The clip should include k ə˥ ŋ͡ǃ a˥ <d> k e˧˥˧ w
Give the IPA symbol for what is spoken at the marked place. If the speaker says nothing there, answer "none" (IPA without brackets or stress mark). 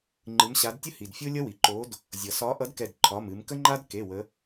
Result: d